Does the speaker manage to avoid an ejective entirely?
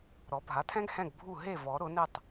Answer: yes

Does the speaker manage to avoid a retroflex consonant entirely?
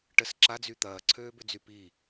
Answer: no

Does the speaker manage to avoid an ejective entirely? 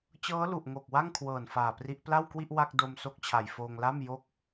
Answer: yes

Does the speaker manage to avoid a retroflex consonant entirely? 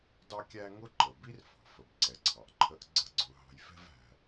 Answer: yes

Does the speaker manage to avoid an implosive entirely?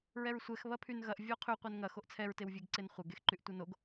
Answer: yes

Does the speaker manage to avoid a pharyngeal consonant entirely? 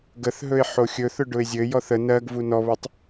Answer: no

